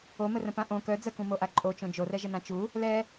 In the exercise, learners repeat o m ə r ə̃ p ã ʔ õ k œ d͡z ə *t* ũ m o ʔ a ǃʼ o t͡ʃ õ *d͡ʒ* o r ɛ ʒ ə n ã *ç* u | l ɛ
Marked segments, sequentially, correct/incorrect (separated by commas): incorrect, correct, incorrect